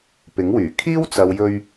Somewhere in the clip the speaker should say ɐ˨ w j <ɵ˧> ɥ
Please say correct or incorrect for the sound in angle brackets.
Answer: correct